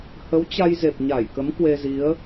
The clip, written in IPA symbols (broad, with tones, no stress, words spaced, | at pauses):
hə˨˦wt͡ɕa˧jze˨˩p̚ ɲa˧˩jkə˨˦m kwe˧zi˨˦ə̯